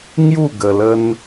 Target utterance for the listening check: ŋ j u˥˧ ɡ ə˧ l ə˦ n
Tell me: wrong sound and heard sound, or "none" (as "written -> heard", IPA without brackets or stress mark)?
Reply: none